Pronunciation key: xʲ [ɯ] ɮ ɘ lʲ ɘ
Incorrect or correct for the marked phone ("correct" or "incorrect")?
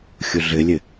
incorrect